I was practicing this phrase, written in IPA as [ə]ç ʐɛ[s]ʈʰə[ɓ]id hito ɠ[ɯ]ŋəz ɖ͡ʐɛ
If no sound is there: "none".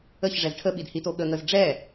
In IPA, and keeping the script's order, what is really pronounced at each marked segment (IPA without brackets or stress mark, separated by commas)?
ə, z, ɓ, ə